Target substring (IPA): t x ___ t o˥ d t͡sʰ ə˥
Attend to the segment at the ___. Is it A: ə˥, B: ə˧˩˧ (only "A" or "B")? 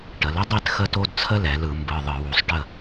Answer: A